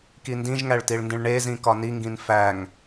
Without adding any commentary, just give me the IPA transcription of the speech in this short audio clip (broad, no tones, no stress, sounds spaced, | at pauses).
k i n d ĩ ʒ ŋ æ ɭ t i ɭ n d ĩ ɭ ɳ e z ĩ k ɒ n i ŋ ɡ ĩ n f æ ŋ